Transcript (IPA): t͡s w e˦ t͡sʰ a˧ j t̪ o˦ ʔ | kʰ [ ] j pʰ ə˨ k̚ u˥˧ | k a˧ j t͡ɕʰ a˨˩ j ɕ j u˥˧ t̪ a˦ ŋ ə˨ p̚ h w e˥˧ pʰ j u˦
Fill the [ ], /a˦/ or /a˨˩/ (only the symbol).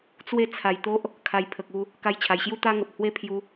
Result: a˨˩